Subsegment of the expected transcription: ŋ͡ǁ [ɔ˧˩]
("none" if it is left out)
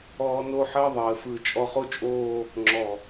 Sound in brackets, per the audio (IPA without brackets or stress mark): ɔ˧˩